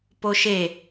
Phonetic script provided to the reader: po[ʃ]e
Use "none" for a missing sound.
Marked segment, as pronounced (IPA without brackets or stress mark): ʃ